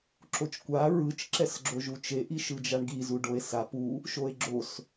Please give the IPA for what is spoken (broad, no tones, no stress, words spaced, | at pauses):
ǁot͡ʃkʷa ɹɯt͡ʃ ǁɛsɡ͡ǁoʒut͡ʃe ʔiʃɯd͡ʒaɳɡi zuɖoe̯sa pu | ʃoe̯ɡ͡ǁos